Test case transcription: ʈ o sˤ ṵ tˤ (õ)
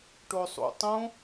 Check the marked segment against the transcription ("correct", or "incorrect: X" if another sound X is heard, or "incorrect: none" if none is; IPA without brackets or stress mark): correct